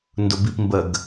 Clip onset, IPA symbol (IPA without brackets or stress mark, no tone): n